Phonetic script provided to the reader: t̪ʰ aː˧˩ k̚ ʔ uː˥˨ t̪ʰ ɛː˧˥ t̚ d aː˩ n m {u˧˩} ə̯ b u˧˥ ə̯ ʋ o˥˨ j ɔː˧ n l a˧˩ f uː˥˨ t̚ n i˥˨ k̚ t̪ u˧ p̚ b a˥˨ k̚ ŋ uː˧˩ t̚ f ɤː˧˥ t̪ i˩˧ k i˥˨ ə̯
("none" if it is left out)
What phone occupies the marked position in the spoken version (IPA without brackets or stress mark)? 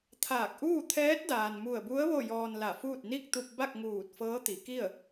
u˧˩